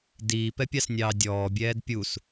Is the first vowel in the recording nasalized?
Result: no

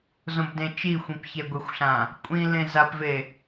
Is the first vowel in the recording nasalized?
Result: yes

